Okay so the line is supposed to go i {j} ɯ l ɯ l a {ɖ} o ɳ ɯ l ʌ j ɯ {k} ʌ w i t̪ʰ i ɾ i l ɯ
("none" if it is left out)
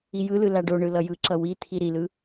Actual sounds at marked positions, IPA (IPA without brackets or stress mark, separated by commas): j, ɖ, ǁ